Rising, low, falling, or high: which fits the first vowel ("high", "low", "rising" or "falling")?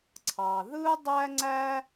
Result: low